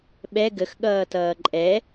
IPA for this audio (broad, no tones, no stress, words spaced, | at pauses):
ɓɛ ɡəxɠʌːtʌː ǃʼɛ